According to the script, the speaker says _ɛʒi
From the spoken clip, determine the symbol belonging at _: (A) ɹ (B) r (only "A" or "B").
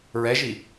A